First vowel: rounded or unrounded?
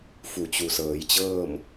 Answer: rounded